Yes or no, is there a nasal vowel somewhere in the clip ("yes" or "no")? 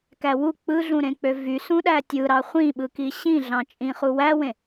yes